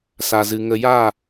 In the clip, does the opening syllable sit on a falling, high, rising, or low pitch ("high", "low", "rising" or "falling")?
low